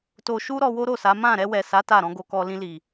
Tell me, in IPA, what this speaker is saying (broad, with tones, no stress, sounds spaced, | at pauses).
t o˧ ʃ u˦ ɾ ɔ˧ w o˦ ɾ o˦˨ s a˨˦ m ã˦˨ ɾ ɛ˧ w ɛ˨ s a˨˦ t a˦˨ ɾ ɔ̃˨˦ ɡ o˧ k ɔ˧ l ĩ˧ l i˨